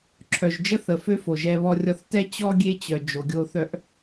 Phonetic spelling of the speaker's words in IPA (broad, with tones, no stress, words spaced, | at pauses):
ǁʰœ˨ʒd͡ʒə˦θə˨fø˦ fo˨ʒɛ˦βɔ˦rʲɔ˦θ tɛ˦t͡ɕɔ˦ ɡʲe˦t͡ɕœ˨ d͡ʒo˨ɡʲo˦θœ˦ʔ